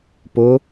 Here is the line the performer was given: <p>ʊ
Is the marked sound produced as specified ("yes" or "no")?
yes